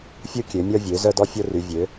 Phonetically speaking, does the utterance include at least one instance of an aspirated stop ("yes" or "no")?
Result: no